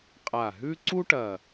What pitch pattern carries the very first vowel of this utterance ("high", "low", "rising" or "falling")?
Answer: low